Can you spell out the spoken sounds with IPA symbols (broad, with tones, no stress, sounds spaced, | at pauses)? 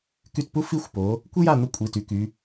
k y˦˨ t p u˥ f i˦˨ xʷ p o˩˧ | kʷ e˥ j a˦˨ n̪ ə˥ kʷʼ i˩˧˩ t y˩˧ k y˩˧